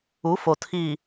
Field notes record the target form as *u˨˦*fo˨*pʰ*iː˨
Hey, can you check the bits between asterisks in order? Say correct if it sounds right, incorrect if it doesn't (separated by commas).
correct, incorrect